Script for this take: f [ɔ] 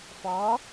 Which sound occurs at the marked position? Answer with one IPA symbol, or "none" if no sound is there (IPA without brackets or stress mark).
ɔ